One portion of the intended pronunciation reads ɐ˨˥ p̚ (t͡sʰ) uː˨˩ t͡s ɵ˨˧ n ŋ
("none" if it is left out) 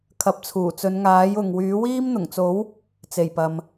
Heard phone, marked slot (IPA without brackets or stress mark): t͡sʰ